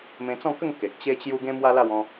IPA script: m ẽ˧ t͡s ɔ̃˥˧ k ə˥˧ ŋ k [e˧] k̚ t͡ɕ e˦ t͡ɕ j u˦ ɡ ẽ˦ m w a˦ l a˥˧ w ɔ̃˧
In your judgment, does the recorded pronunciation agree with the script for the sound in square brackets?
no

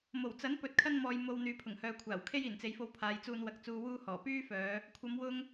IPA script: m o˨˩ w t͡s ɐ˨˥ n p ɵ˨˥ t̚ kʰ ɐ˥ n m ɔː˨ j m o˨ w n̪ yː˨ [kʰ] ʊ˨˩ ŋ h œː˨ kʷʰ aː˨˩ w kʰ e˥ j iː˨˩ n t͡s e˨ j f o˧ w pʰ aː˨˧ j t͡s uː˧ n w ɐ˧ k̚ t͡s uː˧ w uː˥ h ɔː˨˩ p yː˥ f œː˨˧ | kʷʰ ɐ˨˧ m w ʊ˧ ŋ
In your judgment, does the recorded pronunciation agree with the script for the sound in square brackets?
no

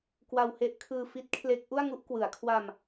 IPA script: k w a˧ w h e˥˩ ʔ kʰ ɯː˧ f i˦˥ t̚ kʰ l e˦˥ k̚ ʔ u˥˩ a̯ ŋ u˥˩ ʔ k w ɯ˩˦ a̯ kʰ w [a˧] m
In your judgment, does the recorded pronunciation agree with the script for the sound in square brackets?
yes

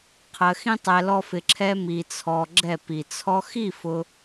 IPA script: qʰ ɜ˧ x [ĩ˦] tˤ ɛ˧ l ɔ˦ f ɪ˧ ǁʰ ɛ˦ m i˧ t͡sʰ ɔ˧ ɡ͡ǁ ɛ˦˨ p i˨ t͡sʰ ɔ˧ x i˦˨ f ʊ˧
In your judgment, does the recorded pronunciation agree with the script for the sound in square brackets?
yes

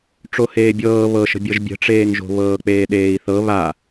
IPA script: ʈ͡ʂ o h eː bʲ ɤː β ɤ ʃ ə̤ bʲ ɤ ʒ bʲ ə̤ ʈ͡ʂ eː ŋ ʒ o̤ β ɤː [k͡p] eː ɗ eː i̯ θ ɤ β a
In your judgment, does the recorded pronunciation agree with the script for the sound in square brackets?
yes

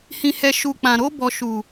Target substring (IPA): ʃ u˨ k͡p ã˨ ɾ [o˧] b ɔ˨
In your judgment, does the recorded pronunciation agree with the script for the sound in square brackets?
yes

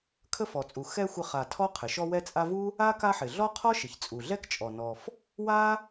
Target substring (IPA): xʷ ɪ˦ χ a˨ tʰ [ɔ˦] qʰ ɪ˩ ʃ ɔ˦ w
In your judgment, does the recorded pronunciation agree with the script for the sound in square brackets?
no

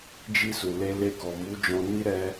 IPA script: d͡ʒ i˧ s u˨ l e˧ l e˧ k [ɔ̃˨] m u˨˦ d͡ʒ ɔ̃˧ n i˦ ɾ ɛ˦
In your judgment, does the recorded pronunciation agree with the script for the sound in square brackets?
no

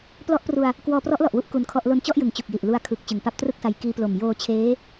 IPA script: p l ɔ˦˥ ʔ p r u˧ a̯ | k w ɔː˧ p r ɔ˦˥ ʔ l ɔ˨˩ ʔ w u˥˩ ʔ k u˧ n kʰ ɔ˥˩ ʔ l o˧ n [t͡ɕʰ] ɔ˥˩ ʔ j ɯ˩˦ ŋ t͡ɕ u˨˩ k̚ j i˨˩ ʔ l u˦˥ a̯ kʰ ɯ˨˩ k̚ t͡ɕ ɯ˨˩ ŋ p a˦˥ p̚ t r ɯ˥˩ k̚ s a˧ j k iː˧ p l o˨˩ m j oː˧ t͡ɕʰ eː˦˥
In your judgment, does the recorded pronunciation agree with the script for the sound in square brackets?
no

